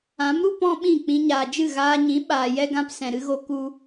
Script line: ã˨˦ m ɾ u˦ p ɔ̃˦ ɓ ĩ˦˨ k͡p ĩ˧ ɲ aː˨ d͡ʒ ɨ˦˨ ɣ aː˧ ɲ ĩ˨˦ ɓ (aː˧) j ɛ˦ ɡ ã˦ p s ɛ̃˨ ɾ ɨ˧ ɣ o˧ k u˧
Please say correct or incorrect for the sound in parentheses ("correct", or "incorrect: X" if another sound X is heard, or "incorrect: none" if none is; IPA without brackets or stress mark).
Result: correct